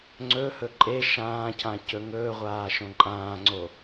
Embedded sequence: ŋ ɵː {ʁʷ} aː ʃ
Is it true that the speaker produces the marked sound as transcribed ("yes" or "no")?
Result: yes